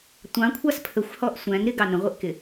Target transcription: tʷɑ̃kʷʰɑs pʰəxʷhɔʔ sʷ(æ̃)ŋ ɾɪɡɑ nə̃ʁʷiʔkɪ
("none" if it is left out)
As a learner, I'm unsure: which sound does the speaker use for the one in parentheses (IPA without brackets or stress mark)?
æ̃